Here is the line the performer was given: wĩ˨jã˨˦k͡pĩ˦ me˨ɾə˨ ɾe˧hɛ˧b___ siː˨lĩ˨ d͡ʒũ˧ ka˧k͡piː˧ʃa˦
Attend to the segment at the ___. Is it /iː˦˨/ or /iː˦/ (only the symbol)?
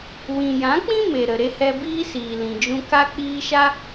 iː˦